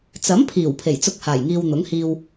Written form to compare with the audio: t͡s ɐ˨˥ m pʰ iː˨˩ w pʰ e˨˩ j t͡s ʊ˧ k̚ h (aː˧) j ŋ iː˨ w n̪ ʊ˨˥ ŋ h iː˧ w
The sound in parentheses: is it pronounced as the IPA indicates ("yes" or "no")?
no